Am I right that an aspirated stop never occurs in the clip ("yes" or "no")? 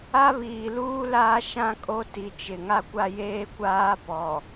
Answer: yes